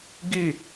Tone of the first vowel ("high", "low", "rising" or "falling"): falling